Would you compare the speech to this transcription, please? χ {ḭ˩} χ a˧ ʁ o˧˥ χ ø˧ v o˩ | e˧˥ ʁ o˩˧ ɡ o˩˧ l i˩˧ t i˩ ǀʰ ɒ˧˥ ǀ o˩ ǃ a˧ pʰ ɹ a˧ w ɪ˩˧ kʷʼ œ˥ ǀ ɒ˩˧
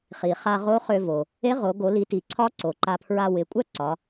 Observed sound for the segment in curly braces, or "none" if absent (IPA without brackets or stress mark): i˩